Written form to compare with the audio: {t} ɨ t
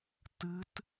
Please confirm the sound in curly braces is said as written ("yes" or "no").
yes